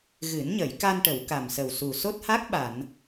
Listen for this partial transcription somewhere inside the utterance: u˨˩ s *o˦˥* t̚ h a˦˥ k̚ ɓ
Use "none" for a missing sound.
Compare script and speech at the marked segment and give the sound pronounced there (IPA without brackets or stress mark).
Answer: o˦˥